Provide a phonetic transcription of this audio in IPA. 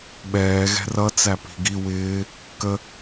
ɓ ɛː ɣ ɛ̤ r ʌ t͡s æ p i̤ ɡ i w ɪː | k ə

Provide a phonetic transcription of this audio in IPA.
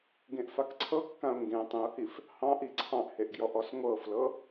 ɡ ẽ ʔ f a k ǀʰ ɤ kː ã ʊ̯ ŋ ɡ ẽ tˤ ẽ ʊ̯ h i f | h ɑ̃ ʔ i ǀʰ ɑ̃ ʔ h e ʔ ɡ j ɔ ʔ ɔ s ŋʷ ɤ f l ɤ

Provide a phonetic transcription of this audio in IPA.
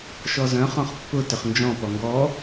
ʃ ɔ z œ̃ χ ɔ̃ χ pː ʊ t ʏ χ n d͡ʒ ɔ̃ p ɔ ŋ ɡ ɔ

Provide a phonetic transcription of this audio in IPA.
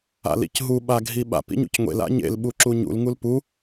a̰ l ḭ c ɦ u ɓ a ɡʱ i ɓ a̰ p ḭ ɲ ṵ c ŋʷ ḛ l a̰ ɲ ḛ l ɓ u ǁ u ɲ ṵ l ŋ u l p u

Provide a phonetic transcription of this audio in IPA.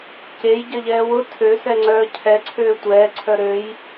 c e j ɟ ɐ ʎ ɛː w ʊ tʰ ø s ɛ ŋ͡ǀ œː cʰ ɛ ǀʰ øː tʷ ɛː ǀʰ œ ɾ ø j

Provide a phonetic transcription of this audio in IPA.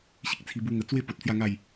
ɕ i˦ k̚ t͡sʰ i˧ b u˧ ŋ ə˨˩ t͡s w e˥˧ p o˨ t̚ t͡s j a˥˧ ŋ a˥˧ j

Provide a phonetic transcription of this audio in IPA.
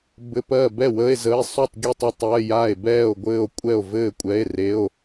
b ɘ˧˥˧ p ɜ˥˨ b ɛ˥˨ w ə˧˥˧ e̯ z ə˧˥˧ e̯ sˤ u˥˨ tˤ ɡʲ u˥˨ tˤ œ˥˨ tˤ ɜ˧˥˧ j a˥˨ e̯ b ɛː˥˨ o̯ ɡʷ ɘː˥˨ o̯ kʷʼ ɛ˥˨ o̯ v ɘː˥˨ kʷʼ ɛ˧˥˧ e̯ r e˧˥˧ o̯

